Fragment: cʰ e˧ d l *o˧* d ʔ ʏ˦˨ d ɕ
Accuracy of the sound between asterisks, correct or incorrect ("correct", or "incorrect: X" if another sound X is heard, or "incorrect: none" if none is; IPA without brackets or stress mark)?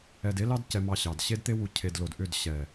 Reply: correct